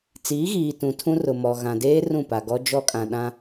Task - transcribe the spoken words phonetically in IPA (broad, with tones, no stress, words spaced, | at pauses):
t͡siː˨˦ɣiː˨ tũ˨tʰũ˦rʊ˨mɔ˨ ɣã˨deː˦ rũ˦˨pa˨ɡɔ˦ d͡ʒɔ˦kʼã˨ ɗã˦